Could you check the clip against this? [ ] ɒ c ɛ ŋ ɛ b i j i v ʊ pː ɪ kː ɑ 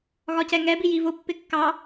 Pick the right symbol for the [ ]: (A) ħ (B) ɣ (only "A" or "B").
B